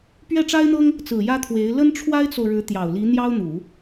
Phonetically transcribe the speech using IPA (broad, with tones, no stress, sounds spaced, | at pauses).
p ɥ ɛ˥˩ ʈ͡ʂ a˥ ɪ̯ n̪ ɤ˥ ŋ | t͡s ɹ̩˨˩ j ä˥ t̪ʰ w e˧˥ ɪ̯ l ə˥ n ʈ͡ʂʰ w a˥ ɪ̯ t͡s o˨ ʊ̯ ɻ ɻ̩˧˥ t̪ j ɑ˨˩ ʊ̯ l i˧˥ n̪ j ɑ˥ ʊ̯ n̪ u˨˩˦